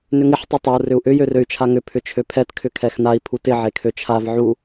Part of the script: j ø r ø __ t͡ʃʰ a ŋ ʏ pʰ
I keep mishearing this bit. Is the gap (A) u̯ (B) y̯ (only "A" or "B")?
B